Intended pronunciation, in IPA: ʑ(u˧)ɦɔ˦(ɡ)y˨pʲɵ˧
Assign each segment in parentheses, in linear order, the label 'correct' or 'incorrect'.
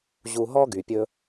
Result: correct, correct

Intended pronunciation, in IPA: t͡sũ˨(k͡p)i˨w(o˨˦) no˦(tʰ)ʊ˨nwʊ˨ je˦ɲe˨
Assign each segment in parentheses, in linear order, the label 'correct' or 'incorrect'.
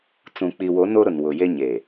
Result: correct, correct, incorrect: ɾ

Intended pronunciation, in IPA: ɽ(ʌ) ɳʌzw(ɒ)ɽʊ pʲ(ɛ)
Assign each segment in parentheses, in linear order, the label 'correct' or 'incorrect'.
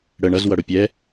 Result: incorrect: ə, incorrect: ʌ, correct

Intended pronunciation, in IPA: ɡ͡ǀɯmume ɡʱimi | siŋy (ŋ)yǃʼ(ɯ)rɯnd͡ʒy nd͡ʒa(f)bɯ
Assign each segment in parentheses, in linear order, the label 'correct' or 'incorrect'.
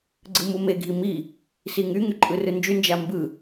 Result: correct, correct, incorrect: m

